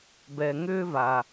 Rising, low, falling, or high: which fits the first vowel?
low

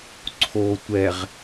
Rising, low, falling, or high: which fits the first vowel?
low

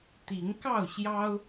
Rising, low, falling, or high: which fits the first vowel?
rising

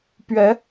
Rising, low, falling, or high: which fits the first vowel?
rising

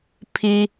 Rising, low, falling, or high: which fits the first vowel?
low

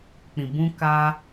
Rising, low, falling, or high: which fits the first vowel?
low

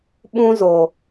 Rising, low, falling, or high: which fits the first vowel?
high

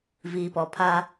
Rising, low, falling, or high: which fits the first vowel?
low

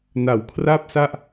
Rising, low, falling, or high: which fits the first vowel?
low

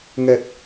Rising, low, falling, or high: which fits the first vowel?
low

